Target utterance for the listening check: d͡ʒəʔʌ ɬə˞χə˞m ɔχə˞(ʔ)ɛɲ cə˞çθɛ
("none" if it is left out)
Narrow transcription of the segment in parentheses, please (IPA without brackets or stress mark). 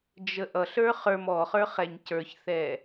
χ